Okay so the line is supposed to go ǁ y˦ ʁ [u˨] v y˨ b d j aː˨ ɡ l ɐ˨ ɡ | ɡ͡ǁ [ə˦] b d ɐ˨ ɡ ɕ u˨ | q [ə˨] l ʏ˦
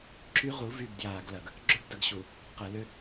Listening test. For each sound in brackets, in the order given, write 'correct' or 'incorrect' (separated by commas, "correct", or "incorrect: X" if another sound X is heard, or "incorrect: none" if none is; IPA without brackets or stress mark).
incorrect: u˨˦, incorrect: ø˦, incorrect: ɐ˨